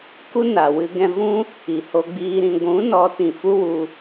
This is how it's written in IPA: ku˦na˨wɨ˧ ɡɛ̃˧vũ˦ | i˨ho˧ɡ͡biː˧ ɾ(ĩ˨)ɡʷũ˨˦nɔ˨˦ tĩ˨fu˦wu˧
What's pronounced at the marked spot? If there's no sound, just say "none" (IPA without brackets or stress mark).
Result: ĩ˨